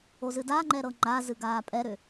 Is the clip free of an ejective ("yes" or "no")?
no